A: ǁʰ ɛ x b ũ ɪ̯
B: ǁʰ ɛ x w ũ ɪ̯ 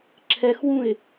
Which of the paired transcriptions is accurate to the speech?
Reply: B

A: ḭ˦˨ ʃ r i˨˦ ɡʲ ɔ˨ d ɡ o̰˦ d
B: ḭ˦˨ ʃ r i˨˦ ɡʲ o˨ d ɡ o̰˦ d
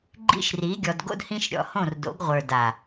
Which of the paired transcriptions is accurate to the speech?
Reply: A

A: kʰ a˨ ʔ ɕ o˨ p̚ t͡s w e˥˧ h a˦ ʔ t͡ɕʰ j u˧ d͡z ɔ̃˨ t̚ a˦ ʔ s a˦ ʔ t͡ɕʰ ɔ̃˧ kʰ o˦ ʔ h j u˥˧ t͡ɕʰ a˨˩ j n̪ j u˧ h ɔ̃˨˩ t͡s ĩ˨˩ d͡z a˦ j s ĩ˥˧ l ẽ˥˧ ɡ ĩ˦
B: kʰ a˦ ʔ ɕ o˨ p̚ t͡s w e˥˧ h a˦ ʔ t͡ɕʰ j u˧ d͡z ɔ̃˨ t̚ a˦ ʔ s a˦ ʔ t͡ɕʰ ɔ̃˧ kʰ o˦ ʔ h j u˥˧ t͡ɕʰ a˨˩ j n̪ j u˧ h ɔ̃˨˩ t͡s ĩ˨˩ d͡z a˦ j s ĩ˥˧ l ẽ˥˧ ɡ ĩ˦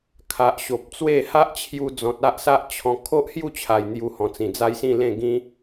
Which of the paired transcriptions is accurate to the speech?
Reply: A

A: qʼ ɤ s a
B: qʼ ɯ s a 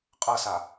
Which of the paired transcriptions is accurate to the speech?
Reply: A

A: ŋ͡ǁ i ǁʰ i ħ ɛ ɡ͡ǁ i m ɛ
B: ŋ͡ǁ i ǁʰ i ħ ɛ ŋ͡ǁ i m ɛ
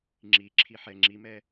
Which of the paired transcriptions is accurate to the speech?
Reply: B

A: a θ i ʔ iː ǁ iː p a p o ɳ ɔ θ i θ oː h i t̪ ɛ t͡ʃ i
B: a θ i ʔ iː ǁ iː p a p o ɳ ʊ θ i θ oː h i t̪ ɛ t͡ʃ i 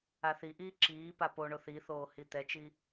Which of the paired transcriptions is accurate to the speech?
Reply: B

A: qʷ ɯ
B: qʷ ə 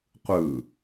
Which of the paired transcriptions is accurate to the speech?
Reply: A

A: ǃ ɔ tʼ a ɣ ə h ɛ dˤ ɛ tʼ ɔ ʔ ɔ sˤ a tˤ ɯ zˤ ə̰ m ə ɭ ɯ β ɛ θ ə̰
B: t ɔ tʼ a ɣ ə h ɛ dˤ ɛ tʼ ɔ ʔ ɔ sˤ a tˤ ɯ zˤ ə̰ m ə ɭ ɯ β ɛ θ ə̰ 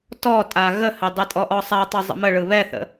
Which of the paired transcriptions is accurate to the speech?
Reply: B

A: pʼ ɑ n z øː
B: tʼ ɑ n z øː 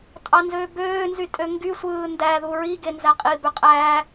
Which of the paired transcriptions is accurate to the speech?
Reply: B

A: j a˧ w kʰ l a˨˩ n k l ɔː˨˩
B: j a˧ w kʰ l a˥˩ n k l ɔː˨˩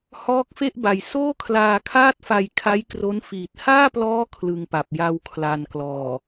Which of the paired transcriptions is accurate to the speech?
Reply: A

